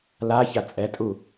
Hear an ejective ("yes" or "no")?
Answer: yes